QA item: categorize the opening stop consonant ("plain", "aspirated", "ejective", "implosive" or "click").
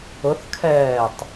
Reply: aspirated